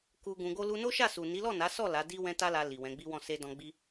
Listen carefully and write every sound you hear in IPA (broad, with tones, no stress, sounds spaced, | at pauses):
k u˧ ɡ ũ˧ ɡ o˦ l u˧ n o˦ ʃ a˦˨ s u˨ n i˨˦ l ɔ˦˨ n a˨˦ s ɔ˦˨ l a˨˦ d i˦ w ɛ̃˦ t a˦ l a˧ l i˨ w ɛ̃˨˦ ɡ͡b i˦ w ɔ̃˦˨ s e˧ d ɔ̃˧ ɡ͡b i˦